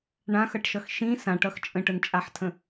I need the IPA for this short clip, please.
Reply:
ɳ ã x ʌ ʈ ʃ ʌ x ʃ ĩ s ã ʈ ʌ x t͡ʃʼ ə̃ ʈ ə n t͡ʃʼ a ħ tʰ ə̃

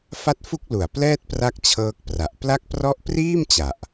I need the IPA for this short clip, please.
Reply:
f a˦˥ t̚ f u˦˥ k̚ l u˨˩ a̯ p l ɛː˥˩ t̚ p r a˥˩ k̚ t͡ɕʰ ɤː˦˥ k̚ p r a˨˩ ʔ p l a˦˥ k̚ p r ɔ˦˥ ʔ p r iː˥˩ m t͡ɕ a˨˩ ʔ

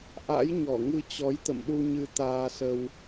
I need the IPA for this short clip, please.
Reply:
ʔ a̰˧˥ j ɲ ɔ˧˩ ŋ ɨ˧ t͡ɕ ɔ˨˦ j t̪ ə̰˧˨ m ɗ u˧ ɲ ɨ˧ t̪ aː˧ s ə˧ w

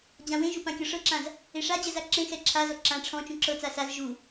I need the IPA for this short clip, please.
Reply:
d͡ʑ ã w ẽ ʒ u p ã kʲ ɔ ʂ ɤ ǁ ã z | e ʂ a d͡ʑ ɛ z a ǁ ẽ x ɛ ǁʰ a z ɔ ǁ ã ʈ͡ʂʰ ɔ̃ t͡ʃ ũ ǁ ɤ t͡s a s a z ʒ u

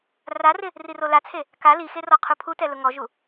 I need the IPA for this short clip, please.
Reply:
r a r ɪ | r i r o l a t͡sʰ e | k a l i x e r ɔ qʰ u pʰ u t ɛ l ʊ ŋ ɔ ʒ u

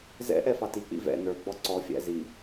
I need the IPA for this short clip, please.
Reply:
z ɛ̰ ʔ ɛ f ɑ t i k͡p ḭ v ɛ̰ n ə˞ ɡ͡b ɔ ǀ ɔ fʲ æ̰ z i

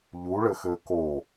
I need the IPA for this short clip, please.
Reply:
ʎ u ɭ ɘ x ɘː k o

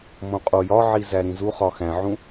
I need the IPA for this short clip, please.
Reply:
m õ qʼ o j ɒ ʕ i z æ ɾ ĩ z u χ ɒ x æ̃ ʕ ũ

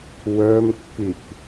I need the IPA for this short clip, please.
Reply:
w ə˞ m kː y k

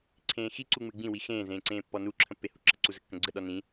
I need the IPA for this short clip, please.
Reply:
ǀʰ ẽː x i ǀ u ŋ͡m ɨ ɡ͡b ĩ w i x ẽː z ẽː ǀ ẽː pː ɔ n u ǁʰ ə̃ pː e h ṳ ǁ ə̤ ǀ u z ə kː ə̃ ɡ͡ǀ ə ɗ ɔ n ĩ

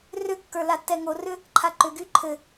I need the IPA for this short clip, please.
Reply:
r ʏ kː ə˞ l a tː ɛ ŋ o r ʏ | ǃʰ a ǃ ʏ ɡ y ǃʰ ɘ

